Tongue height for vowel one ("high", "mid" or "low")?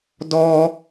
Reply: mid